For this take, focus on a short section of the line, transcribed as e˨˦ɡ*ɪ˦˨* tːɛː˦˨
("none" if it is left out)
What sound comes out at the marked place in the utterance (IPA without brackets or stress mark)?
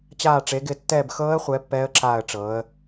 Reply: ɪ˦˨